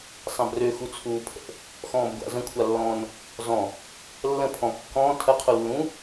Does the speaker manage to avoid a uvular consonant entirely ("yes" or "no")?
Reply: no